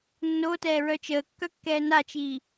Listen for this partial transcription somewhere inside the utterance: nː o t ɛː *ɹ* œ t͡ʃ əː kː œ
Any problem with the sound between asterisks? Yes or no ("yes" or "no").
no